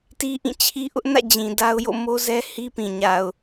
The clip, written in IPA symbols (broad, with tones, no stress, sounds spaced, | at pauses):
t i˦ ʔ ĩ˦˨ t͡ɕʰ i˦ ʔ ʊ˦ ʔ n ä̰˦˨ d͡ʑ ĩ˨ d a˦ ʊ̯ j o̰˦˨ m o˦ z ɛ˦ h i˦ p ĩ˨ ɲ a˨ ʊ̯